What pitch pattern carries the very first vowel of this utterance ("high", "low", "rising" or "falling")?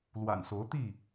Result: low